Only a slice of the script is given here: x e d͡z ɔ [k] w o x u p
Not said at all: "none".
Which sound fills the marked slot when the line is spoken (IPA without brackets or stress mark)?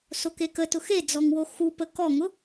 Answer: ŋ